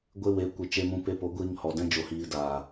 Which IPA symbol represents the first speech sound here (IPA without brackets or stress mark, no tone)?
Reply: ɡʷ